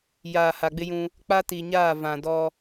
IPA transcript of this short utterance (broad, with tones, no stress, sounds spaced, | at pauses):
j aː˨ h a˨ ɡ͡b ɪ˦ j ũ˦ | k͡p a˦ t i˨ ɲ aː˦˨ v ã˨ d ɔ˦